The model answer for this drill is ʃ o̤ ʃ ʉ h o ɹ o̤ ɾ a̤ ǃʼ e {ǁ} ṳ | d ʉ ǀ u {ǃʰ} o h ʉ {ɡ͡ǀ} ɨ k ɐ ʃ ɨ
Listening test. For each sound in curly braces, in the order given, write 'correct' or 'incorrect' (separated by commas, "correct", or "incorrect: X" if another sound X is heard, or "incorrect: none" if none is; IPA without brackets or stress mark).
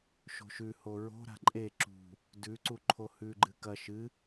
correct, correct, incorrect: ɡ͡ǃ